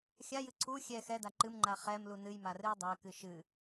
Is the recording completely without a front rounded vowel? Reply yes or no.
yes